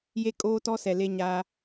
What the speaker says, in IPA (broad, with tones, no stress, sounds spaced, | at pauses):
j e˦ kʼ oː˦ t ɔ˦ s ɛ˨ l e˦ ɲ aː˦